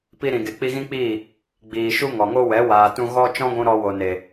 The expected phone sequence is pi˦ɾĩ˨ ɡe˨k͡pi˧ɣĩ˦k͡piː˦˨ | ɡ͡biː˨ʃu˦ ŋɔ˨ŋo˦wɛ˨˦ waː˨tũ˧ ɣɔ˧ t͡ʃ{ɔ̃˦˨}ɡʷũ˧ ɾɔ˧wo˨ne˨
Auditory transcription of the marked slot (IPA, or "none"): ɔ̃˦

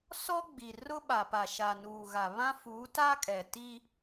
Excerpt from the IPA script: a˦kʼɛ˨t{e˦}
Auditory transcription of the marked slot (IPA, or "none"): i˦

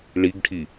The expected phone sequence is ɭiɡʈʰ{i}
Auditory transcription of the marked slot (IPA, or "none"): i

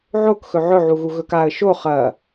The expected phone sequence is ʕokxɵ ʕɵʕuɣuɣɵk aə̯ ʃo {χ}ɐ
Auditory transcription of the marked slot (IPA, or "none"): χ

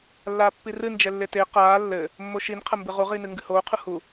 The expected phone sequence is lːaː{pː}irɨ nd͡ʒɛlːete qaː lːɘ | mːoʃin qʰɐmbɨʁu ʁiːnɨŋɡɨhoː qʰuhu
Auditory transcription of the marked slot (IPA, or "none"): pː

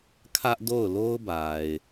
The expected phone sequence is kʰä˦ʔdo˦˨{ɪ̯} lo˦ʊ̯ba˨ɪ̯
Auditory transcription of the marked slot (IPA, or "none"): ʊ̯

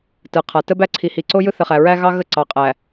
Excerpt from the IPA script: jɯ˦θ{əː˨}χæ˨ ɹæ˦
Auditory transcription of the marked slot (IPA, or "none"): ə˨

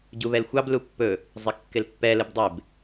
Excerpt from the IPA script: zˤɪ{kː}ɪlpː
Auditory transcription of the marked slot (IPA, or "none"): kː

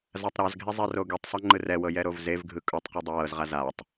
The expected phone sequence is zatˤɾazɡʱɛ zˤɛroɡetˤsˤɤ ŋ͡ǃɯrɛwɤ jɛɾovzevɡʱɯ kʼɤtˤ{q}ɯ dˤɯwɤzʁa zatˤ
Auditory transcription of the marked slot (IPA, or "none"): q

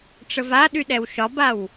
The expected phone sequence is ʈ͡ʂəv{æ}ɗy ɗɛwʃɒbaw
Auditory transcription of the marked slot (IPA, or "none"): a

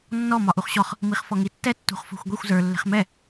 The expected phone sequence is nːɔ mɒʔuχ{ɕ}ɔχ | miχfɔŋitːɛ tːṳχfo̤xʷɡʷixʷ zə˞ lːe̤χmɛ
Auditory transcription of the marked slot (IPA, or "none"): ɕ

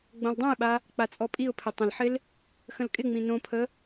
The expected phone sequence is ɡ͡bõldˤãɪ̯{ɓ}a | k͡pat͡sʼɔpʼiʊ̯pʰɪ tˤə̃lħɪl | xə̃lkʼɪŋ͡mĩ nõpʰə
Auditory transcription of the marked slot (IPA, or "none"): ɓ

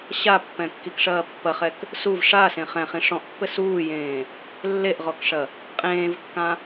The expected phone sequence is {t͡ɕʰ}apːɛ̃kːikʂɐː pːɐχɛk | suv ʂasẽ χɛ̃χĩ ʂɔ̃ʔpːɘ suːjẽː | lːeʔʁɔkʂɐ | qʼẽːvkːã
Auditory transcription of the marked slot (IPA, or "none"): ɕ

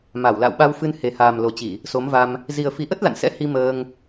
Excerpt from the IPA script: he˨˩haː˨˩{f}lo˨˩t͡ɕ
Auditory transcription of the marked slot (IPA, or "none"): m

